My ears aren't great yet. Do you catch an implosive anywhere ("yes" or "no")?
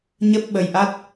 yes